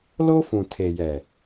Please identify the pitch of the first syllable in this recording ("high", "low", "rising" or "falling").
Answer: high